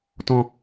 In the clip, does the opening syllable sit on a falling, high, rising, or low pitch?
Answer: high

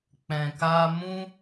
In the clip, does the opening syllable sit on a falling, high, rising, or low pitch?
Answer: low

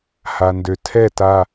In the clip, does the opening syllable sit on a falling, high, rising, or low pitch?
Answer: low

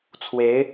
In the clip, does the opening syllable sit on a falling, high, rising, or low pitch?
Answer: rising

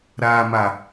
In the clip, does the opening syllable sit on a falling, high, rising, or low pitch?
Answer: low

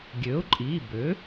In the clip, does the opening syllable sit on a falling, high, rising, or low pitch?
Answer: rising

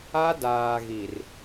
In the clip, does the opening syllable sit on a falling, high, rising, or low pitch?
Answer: high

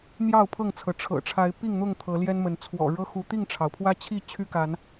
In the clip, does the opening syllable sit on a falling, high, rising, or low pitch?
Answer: falling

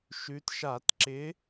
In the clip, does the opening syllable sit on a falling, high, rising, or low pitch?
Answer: rising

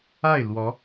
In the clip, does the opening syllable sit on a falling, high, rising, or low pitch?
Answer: falling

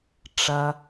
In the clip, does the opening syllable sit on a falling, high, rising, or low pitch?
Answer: low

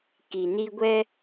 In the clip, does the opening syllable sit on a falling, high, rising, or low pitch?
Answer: low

